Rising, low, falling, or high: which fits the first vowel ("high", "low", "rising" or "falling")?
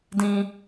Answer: high